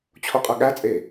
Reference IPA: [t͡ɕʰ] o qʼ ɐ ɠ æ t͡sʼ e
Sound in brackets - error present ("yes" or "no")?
no